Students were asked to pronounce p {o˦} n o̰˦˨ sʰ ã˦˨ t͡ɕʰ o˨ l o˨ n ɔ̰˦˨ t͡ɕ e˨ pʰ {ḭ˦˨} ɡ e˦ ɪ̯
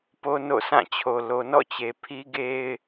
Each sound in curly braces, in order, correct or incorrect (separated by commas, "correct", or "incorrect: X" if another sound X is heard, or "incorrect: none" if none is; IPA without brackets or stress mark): correct, incorrect: i˦